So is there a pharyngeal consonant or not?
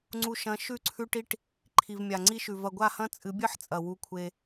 yes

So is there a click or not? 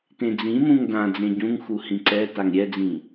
yes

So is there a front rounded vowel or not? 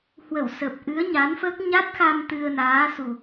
no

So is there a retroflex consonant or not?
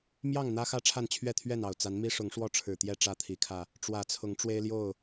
yes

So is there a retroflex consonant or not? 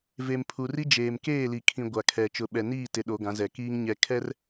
no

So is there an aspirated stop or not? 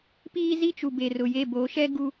no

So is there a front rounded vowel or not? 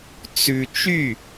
yes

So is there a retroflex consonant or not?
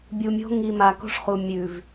yes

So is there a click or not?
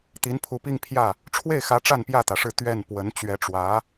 no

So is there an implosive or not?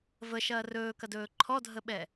yes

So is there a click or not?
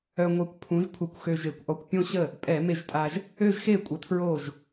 no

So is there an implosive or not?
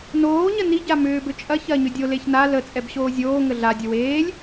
no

